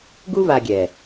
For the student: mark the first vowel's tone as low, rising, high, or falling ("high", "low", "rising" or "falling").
high